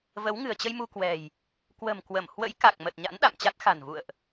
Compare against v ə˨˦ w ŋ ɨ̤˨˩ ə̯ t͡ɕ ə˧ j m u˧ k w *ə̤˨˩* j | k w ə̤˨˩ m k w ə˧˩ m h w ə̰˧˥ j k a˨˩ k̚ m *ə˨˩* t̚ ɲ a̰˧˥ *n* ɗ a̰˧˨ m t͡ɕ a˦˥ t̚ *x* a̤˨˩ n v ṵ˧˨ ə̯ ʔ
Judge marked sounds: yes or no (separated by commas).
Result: no, yes, yes, yes